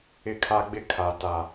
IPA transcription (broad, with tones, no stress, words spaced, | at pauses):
ɪ˦kʰa˦ɡ͡bɪ˦ kʰa˨ ta˨